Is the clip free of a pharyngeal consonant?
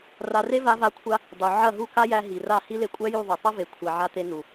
no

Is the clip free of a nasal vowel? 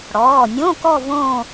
no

